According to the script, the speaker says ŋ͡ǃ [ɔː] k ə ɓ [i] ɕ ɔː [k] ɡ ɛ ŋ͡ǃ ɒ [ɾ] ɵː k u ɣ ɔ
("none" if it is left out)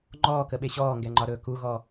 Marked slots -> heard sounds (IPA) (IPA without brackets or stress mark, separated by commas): ɔː, e, ŋ, ɾ